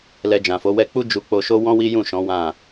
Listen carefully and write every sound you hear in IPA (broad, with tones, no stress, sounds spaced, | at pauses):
l ɛ˧ d͡ʒ ã˨ f o˨˦ w ɛ˧ k͡p u˦ d͡ʒ u˧ k͡p o˧ ʃ o˦ w ɔ̃˦ w i˦ j ũ˦˨ ʃ ɔ̃˨˦ w ã˦˨